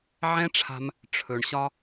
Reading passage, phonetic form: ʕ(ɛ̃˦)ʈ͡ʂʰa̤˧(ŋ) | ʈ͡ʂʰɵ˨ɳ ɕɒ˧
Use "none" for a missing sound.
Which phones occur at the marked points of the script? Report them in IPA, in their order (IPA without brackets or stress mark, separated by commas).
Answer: ɛ̃˦, m